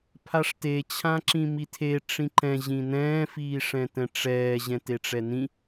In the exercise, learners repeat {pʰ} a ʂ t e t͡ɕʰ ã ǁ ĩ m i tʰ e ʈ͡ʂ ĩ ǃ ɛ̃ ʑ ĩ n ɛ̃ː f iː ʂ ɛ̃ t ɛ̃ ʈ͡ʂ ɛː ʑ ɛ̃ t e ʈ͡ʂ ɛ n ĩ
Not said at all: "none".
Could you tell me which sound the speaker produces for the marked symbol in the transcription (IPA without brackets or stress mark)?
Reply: pʰ